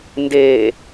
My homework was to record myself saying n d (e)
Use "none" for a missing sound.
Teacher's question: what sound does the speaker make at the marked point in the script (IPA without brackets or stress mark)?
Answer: e